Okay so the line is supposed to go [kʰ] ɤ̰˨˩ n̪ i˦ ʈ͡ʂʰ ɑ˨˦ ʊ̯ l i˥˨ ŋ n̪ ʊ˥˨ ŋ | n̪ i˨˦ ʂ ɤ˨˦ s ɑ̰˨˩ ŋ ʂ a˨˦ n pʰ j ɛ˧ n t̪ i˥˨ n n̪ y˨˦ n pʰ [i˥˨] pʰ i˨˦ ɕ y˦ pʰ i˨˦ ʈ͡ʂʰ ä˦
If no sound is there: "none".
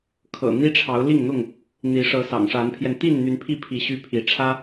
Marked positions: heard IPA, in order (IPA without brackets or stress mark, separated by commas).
kʰ, i˥˨